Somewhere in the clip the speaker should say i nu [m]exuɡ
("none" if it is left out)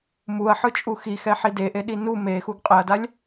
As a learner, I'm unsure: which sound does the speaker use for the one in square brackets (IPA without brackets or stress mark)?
m